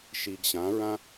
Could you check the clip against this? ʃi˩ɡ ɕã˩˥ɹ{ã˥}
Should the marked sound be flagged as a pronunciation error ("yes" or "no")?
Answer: no